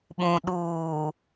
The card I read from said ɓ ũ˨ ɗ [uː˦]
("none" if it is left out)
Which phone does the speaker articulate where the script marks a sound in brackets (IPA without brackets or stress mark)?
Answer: uː˨